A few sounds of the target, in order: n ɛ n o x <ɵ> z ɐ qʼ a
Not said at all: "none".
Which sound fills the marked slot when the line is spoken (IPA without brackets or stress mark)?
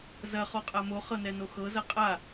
ɤ